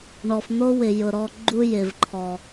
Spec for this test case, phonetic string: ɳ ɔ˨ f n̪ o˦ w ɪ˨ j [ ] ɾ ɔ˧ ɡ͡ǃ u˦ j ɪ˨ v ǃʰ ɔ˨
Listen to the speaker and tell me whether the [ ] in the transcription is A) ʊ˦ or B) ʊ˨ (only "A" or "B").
B